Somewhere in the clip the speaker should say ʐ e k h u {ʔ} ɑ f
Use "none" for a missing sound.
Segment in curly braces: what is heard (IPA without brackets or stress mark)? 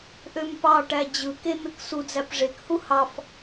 h